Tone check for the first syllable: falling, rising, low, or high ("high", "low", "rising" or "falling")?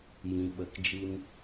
low